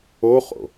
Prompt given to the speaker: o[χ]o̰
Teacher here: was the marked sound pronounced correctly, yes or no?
yes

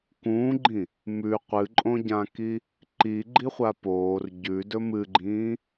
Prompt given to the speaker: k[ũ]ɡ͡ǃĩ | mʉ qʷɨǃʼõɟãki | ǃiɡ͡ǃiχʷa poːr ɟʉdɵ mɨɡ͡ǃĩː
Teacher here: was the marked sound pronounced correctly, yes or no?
no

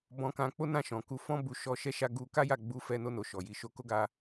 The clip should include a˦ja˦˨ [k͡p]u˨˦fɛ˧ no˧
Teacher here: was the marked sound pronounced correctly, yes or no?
no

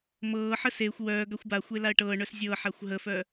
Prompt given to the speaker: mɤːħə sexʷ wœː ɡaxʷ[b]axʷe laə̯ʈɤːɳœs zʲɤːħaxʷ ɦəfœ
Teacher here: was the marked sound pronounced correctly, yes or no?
yes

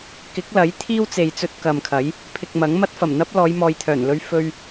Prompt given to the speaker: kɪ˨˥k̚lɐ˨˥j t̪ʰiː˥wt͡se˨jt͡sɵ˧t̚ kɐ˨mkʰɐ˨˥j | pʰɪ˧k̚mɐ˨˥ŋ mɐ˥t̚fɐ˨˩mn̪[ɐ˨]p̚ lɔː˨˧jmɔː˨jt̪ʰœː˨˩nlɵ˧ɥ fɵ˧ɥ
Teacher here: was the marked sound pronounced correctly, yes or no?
no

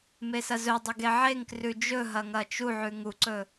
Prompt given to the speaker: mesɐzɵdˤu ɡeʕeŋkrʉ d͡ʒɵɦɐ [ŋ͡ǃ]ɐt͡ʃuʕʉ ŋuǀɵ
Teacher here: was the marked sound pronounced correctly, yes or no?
no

